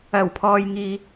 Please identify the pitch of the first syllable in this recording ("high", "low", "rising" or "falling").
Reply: low